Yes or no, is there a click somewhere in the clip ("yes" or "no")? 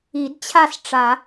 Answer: no